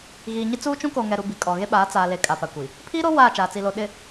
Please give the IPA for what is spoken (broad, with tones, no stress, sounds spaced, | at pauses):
ɣ iː˨ ɲ ɪ˦ t͡s uː˦ t͡ʃ ũ˦ k o˨ ŋ ɛ˨ ɾ u˨ b i˨ kʼ ɔ˨ ɣ e˦ ɓ aː˨˦ t͡s aː˨ l e˨˦ kʼ a˨ p a˨ kʷ i˨ | pʰ iː˦ ɾ o˦ w aː˦˨ t͡ʃ aː˨ t͡s i˨ l o˨ ɗ ɪ˨